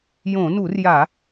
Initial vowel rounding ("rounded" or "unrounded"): rounded